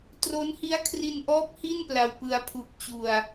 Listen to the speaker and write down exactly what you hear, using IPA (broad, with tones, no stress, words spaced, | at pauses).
tro˦˥n hi˦˥a̯kʰri˧nʔɔː˦˥p̚ hi˥˩npla˧wpɯ˧a̯ pʰu˨˩k̚ t͡ɕu˧a̯